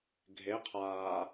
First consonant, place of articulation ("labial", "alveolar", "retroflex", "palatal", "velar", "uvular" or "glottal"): velar